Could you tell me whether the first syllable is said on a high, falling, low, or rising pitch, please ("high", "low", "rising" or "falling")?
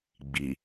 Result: low